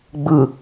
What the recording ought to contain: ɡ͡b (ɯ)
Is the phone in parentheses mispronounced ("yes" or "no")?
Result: no